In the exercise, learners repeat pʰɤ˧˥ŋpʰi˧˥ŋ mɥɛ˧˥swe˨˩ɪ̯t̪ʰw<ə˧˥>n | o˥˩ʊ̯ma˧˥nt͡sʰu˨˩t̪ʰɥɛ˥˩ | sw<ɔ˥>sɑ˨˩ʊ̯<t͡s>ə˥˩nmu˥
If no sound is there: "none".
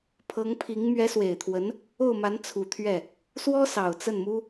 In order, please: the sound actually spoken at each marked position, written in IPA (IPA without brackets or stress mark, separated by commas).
ə˧˥, ɔ˥, t͡s